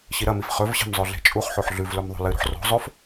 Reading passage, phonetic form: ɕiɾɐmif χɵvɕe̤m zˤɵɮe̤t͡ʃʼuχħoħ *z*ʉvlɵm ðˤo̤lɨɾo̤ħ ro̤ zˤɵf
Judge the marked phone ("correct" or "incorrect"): incorrect